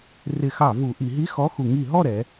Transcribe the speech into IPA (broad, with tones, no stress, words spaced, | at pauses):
rɪ˧˩˧xɑ˧˩˧vu˩˧ ʔi˩˧ɦi˧˥˧ xɔ˧˥˧xu˧˩˧ ŋi˧˩˧ɦɔ˥˨ɾɛ˩˧